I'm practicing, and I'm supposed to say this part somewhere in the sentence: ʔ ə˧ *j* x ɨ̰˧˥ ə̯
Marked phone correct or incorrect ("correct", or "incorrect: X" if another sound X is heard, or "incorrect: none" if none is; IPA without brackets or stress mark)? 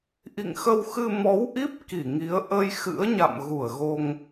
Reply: correct